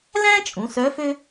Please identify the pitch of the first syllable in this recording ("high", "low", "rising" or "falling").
high